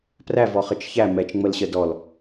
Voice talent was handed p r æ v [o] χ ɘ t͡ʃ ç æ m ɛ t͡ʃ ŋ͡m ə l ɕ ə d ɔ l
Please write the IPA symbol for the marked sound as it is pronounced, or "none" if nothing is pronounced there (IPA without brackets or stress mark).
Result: ɔ